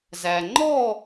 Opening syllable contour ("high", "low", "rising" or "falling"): low